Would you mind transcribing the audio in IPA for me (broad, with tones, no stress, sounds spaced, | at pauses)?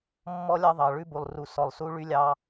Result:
mː ɔ˦ lʲ ɑ˦ ðˤ ɑ˨ ɭ ʉ˦ b u˨ lˠ r u˨ s ɔ˨ lˠ s u˦ ɭ y˦ lʲ ɑ˦